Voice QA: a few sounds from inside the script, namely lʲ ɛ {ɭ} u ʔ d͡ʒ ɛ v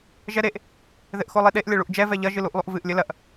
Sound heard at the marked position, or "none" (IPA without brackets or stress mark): ɭ